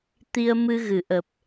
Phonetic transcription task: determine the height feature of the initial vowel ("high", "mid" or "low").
high